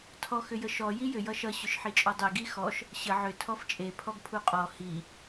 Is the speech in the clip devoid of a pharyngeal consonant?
no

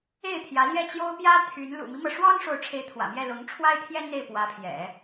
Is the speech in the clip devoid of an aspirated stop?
no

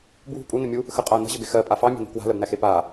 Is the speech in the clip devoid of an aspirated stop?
yes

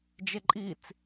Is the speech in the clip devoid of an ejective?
no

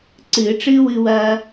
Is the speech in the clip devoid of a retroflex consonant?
no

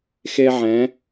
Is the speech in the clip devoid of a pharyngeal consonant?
no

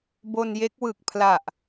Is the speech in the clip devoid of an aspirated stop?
no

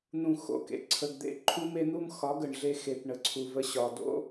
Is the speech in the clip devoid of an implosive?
yes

